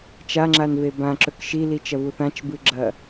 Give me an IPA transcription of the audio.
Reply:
t͡ʃaŋ͡ǁanve bãǁɵk ʃilit͡ʃɐvu θãt͡ʃbɨɡ͡ǁɐ

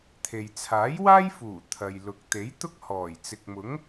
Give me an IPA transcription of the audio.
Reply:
t̪ʰe˨j t͡sʰaː˨˥jwaː˥jfuː˨˩ t̪ʰɐ˨jlʊ˨k̚ t̪e˨˥jt̪ʊ˥k̚hɔː˨˩j t͡sɪ˨k̚mʊ˨˥ŋ

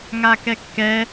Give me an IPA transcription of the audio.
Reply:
ŋakɛkːɛ

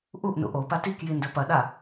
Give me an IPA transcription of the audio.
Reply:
ʔuʔ nṵʔopa tikji ndɵpɐɗa

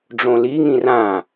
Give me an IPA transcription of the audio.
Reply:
ɖ͡ʐõliŋĩ rã

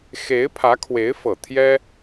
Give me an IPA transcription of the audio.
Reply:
xe˧˥ɪ̯pʰä˧˥kʰwe˧˥ɪ̯fɤ˨˩ t̪ʰjɛ˥

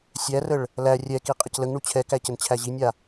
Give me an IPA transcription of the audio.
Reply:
sʲærəɭ | læ rʲɛki qʼəcləŋɳu t͡ɕʰɛkæ cənt͡ɕʰæʑinʲa

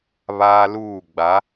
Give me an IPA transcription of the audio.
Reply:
βaː˦luː˦˨ ɡ͡ba˨˦

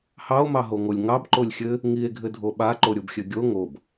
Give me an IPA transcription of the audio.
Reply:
hɑo̯mɑɦoŋolʲ ŋɑbǃolʲ xʲɘ | ŋie̯ɡʱɘdʱo ɓaǃoɾʲobxʲɘ ɡʲo ŋob

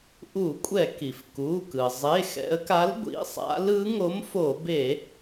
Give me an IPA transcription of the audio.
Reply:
ʔu˧˩˧kʷʼɛ˧˩˧ ki˩fku˩˧˩kɯ˩ zˤe˩˧˩xɛ̰˩˧ə̯ka˨˥l ɡʷḭ˩˧˩sˤa̰˨˥lɯ˨˥ ŋo˨˥mfo˧˩˧be˧˩˧

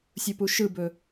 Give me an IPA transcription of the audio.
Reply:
sʲupuʃɯbɵ

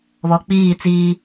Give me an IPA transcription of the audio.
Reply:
βɔ˨k͡piː˦˨t͡siː˦

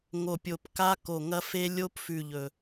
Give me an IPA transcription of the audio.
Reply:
ŋo˨˩pʲo˨˩p ka˦˥ko˨˩ŋɐ˦˥fe˦˥ lʲo˦˥pfʉ˨˩ ʎɵ˨˩

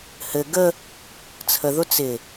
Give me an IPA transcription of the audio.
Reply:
hɘ ɡə | t͡sʰəðʊ t͡sɪ

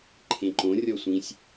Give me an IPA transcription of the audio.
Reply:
ǃʰẽǃõ rʲɔsʷĩsʲ

